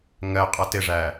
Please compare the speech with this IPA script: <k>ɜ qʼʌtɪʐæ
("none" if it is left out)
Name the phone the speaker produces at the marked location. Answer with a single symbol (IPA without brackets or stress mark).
ŋ